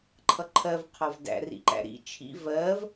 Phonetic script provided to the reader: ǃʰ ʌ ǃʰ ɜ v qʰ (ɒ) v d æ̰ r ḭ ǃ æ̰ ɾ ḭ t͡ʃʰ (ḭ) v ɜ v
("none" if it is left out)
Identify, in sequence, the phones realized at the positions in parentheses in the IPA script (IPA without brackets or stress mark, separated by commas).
ɒ, ḭ